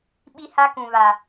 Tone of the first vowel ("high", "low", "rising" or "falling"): high